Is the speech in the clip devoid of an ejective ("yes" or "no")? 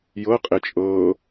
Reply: no